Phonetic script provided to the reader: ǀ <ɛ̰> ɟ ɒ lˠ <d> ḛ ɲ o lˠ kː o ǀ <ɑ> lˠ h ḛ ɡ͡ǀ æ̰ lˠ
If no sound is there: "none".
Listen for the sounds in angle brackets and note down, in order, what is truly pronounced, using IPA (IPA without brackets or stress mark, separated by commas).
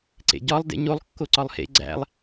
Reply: ḛ, d, ɒ